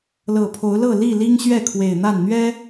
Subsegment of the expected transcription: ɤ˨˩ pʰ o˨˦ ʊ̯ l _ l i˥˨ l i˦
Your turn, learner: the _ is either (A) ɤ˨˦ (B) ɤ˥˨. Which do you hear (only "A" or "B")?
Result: B